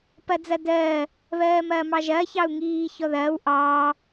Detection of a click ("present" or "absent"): absent